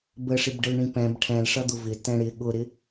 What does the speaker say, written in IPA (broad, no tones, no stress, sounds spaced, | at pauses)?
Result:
b ə ʂ ɪ b ɖ ə l ɳ ĩ p ɛ̃ b ʈʰ ɛ̃ l ʂ ʌ d̪ ʊ v ɪ t ɛ̃ ɽ ɪ ɠ ʊ ɾ ɪ